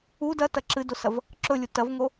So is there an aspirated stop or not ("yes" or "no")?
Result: no